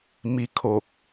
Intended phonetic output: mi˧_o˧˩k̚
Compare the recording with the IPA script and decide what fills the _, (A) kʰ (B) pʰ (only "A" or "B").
A